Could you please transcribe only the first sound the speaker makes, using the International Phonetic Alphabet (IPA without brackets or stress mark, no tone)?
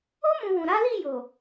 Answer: o